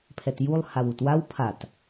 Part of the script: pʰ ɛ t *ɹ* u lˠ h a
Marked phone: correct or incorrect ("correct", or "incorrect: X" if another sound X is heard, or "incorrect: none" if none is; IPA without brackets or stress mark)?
incorrect: j